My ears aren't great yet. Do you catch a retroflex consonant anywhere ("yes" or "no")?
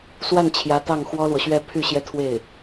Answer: no